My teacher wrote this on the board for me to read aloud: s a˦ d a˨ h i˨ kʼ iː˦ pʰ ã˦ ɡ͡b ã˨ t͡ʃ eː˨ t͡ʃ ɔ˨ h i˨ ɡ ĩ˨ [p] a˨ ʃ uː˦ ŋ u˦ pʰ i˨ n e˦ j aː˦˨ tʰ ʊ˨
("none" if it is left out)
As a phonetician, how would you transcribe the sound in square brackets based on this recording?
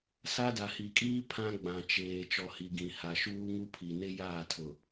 h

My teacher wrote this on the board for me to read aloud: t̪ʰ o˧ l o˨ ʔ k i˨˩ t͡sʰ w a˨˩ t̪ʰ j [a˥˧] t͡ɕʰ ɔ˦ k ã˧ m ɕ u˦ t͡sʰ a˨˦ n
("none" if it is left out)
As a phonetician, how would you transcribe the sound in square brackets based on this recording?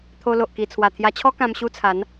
a˧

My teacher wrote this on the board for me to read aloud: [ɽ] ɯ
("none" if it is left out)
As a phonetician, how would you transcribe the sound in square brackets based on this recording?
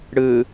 ɽ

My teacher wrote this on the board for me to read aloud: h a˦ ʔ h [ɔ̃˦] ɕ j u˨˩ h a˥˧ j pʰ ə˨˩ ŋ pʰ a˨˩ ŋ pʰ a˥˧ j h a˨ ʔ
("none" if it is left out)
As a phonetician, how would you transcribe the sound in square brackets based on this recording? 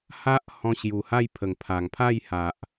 ɔ̃˧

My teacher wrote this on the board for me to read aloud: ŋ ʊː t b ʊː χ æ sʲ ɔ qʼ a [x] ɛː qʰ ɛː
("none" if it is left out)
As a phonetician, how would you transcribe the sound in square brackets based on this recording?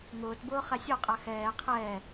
x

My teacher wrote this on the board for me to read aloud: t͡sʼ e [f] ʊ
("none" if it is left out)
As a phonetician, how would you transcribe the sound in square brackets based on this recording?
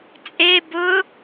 b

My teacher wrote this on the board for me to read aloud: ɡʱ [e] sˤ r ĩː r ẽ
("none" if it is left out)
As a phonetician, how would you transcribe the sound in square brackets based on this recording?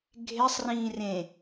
e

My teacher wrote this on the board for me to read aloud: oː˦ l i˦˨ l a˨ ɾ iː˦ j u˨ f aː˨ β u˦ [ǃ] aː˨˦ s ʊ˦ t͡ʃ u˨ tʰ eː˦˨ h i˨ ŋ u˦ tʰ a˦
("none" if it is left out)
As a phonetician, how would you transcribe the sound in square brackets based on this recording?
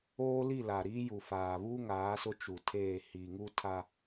ŋ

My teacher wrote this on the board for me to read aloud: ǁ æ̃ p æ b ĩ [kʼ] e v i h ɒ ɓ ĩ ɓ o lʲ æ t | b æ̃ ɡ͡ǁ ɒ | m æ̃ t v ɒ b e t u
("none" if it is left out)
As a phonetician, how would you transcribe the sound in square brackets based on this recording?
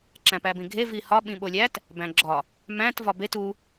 ɡʱ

